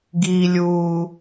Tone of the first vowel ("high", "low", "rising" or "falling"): low